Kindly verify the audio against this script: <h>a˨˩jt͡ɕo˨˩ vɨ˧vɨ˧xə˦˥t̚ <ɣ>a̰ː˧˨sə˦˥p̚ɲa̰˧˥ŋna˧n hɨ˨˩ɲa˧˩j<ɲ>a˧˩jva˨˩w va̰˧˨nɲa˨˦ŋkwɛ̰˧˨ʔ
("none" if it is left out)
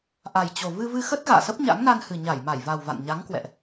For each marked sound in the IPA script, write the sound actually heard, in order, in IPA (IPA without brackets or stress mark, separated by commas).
ʔ, ɣ, m